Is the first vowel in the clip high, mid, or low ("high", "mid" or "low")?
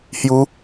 high